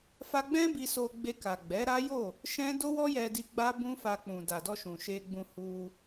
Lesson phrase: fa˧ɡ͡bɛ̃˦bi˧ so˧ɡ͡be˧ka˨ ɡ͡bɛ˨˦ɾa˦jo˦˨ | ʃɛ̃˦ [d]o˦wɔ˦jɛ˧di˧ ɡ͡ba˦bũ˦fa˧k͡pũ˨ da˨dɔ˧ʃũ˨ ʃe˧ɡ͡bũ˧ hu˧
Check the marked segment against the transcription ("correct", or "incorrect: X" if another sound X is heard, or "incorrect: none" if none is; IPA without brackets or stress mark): correct